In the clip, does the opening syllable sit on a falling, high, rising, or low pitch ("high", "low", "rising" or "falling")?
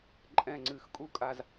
falling